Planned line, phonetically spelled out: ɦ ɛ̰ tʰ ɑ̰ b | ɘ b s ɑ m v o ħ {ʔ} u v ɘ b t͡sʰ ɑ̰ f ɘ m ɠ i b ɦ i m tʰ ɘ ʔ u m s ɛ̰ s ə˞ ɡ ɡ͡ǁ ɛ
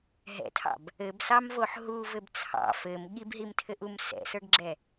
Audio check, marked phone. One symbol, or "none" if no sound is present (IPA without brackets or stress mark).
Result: ɦ